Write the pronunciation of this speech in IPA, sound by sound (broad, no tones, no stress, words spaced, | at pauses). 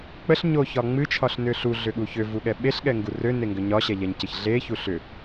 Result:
k͡pəɬɲoçɒ ŋ͡mɨt͡ʃʰɒɬnʏ ɬuɮʏɠu çøvuɠɛ ɓeɬɠɛŋɡu røneŋɡʏ ɲɒɕɛʎɛɲcəç ɮeçu ɬʏ